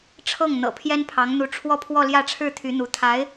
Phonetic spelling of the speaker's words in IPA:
ʈ͡ʂʰɤ˥˩ŋ n̪ɤ̰˨˩pʰjɛ˥npʰɑ˧˥ŋn̪u˧˥ ʈ͡ʂʰwɔ˥˧pʰwɔ˥˧ljä˥˧ʈ͡ʂʰɻ̩˥˩ t̪ʰy˧˥n̪u˧˥ t̪ʰa˧˥ɪ̯

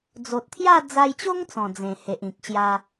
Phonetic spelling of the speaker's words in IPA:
d͡zo˨t̚t̪ʰja˥˧ d͡za˧jt͡ɕo˦ŋ t͡sɔ̃˨˩d͡zẽ˨˩ he˨ʔĩ˨k̚ ɕja˧

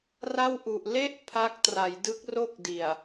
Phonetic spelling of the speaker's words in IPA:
ra˥˩wʔu˨˩ʔ le˥˩ʔ pʰa˦˥k̚ tra˩˦jdɯ˦˥k̚ro˥˩k̚di˨˩a̯

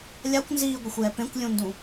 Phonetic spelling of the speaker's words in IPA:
lʲakʷnziːɡʷɪxʷjɛ pẽkʷlʲũndũ

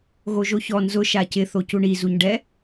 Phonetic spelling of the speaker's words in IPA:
ɣoʒoçɔ nzʊ ʃacɪ θocuɳi zuɲɖɛ

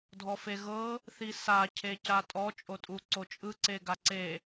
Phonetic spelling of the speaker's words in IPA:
dʱɔfeɣɤ | θisa cʰecatʼɔ t͡ʃʼotʼuǀot͡ʃʼɯ ǀeɡaǀe

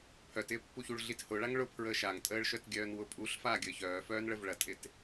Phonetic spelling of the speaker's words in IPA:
pʰœtɪːpːuçuɭ ɮithʊɭaŋ ɭʊpʰɹəː ʃaŋtʼəːɭʃœtɡʲœːn wʊpʼuɬfaː ɡʲəːçœː fœːnɭəvɭɐtʼɪt

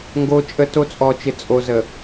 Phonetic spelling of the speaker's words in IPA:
ŋɡo˦t͡ʃʼə˦to˦ t͡sʼɔ˨t͡ʃɪ˨t͡sʼo˨ zə˨

